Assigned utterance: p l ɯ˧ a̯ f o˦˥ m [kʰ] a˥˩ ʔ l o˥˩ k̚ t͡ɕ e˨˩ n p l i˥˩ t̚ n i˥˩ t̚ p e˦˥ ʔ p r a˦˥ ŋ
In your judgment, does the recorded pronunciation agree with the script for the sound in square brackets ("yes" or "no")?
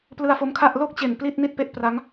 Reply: yes